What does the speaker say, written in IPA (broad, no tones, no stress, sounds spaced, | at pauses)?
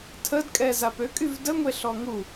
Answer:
tʰ ə d kʼ ɛ z a p ø kʼ y v d ə ŋʷ e ɬ ɔ ŋ u